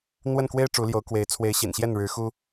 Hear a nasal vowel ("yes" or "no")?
no